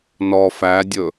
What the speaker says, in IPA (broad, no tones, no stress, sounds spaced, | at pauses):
n ɔ f æ dʲ ɵ